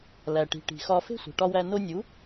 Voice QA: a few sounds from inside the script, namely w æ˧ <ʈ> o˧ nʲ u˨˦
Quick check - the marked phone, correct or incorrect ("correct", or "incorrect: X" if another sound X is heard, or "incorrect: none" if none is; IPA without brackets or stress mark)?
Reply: incorrect: n